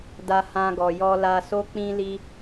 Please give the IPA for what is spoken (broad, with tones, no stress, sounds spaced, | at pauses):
d a˧ h ã˧ ɡ ɔ˨ j ɔ˧ l a˧ s o˦ k͡p ĩ˦ l i˦